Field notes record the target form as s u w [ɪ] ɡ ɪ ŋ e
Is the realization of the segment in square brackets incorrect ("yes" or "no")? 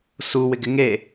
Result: no